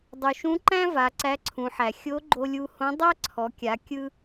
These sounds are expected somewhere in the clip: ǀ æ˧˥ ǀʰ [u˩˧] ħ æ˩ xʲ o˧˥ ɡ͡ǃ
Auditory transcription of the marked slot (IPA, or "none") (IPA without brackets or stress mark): ũ˩˧